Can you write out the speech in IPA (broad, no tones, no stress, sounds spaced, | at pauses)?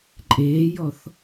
ǃʼ eː j ɔ θ